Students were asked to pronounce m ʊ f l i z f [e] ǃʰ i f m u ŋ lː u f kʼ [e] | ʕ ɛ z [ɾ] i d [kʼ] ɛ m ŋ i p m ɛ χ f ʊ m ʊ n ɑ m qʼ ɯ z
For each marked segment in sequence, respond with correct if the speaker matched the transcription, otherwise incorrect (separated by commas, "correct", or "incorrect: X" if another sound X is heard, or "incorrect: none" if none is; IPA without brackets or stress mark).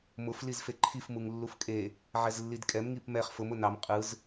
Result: correct, correct, incorrect: lː, correct